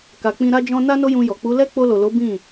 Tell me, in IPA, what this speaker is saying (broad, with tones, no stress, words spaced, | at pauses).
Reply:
ka˨k͡pĩ˧ ɾa˦d͡ʒɔ̃˦ na˦no˦jũ˧jɔ˨ k͡pu˨˦lɛ˦ k͡po˧lo˨lo˨˦ bĩ˦˨